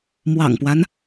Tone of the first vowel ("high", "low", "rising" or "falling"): low